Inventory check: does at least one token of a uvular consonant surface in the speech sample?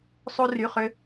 yes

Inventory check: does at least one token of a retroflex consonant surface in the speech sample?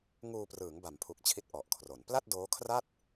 no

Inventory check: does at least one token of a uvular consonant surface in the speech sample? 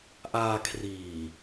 no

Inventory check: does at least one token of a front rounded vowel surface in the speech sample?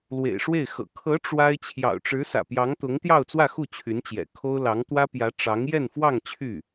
yes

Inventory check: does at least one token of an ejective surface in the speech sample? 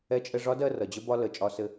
yes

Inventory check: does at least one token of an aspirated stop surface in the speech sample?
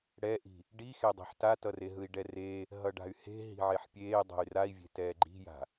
no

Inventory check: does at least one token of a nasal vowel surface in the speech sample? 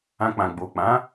yes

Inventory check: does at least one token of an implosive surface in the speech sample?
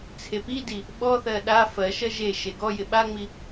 yes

